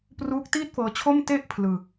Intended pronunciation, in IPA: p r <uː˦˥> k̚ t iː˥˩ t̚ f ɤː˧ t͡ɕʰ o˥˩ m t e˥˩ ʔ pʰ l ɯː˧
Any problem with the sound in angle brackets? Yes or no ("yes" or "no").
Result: no